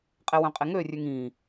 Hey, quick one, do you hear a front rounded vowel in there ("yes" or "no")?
yes